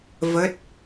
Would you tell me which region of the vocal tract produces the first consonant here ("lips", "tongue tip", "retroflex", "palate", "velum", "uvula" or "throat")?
lips